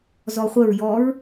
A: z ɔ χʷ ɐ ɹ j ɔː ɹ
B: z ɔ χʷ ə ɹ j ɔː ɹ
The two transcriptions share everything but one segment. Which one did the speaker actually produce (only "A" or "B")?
B